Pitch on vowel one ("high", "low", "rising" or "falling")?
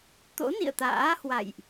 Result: rising